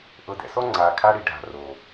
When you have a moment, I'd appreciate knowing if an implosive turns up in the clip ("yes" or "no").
no